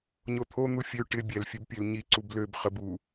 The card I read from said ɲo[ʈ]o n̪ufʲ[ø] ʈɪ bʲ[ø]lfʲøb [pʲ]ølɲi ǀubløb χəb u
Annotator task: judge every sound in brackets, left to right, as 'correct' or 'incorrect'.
incorrect: t̪ʰ, correct, incorrect: ɛ, correct

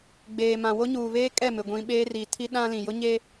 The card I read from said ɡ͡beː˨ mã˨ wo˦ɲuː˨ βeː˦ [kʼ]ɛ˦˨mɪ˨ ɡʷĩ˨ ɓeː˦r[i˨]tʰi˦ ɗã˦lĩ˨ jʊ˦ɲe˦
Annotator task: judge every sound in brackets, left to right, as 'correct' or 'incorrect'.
correct, correct

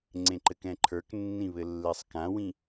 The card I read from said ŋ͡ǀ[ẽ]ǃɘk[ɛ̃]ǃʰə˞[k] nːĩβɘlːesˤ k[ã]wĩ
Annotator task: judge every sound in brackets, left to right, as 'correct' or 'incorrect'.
correct, correct, correct, correct

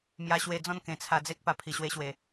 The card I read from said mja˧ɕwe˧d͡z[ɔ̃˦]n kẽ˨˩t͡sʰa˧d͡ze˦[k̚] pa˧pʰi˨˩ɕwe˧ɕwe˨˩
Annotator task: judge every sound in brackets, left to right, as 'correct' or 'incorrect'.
correct, correct

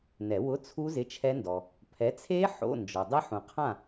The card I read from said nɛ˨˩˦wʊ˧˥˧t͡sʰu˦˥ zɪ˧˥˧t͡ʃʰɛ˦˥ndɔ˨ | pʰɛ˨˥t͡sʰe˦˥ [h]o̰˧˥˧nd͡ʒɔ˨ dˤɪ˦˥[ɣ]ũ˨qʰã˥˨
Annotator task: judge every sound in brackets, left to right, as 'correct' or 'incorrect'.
incorrect: ħ, incorrect: ħ

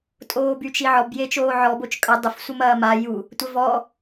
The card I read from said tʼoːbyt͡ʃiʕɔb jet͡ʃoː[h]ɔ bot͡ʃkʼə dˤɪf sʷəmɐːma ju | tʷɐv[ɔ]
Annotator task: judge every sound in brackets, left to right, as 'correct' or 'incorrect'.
incorrect: ʕ, correct

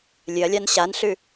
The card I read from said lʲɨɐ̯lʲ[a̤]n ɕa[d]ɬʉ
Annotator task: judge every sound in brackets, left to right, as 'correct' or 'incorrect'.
incorrect: a, incorrect: n

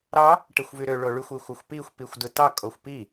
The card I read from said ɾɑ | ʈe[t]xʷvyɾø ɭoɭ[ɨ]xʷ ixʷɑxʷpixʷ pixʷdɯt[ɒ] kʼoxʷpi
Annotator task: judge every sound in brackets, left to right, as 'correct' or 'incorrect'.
incorrect: none, incorrect: y, incorrect: ɑ

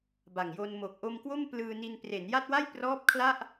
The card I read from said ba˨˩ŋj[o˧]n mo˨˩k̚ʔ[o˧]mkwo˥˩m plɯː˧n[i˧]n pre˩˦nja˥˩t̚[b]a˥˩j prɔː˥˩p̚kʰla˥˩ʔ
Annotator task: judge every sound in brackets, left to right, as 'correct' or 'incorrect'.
correct, correct, correct, incorrect: w

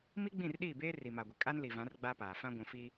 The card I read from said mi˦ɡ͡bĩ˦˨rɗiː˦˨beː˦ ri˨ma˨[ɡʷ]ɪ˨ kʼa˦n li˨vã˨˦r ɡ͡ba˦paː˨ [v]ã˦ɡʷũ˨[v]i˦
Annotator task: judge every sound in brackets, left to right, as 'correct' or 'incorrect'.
correct, incorrect: f, incorrect: f

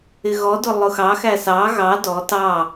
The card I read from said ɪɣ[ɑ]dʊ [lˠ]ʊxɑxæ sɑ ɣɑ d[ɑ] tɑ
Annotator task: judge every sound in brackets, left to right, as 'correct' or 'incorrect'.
incorrect: ɔ, correct, incorrect: ɔ

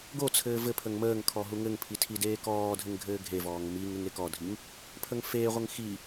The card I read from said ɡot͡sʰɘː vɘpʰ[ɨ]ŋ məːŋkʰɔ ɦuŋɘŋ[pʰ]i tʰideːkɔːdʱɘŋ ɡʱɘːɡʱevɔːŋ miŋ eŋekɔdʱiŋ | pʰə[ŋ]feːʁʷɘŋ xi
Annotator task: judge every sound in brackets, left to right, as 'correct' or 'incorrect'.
incorrect: ə, correct, correct

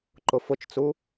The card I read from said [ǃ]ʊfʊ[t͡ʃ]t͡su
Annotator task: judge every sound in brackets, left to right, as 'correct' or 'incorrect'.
correct, correct

